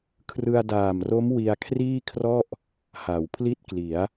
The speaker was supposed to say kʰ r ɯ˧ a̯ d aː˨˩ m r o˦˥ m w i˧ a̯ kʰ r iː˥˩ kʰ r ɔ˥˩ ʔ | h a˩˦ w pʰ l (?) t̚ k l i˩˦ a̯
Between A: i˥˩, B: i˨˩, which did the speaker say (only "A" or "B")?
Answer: A